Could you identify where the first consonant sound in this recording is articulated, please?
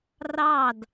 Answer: alveolar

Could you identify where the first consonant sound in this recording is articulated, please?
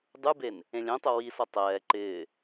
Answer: alveolar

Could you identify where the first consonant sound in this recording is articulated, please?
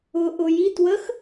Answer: glottal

